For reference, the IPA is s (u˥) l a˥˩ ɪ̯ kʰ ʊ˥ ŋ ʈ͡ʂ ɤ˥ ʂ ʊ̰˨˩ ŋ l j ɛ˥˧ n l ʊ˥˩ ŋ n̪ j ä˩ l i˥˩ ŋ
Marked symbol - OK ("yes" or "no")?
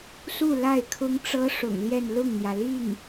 no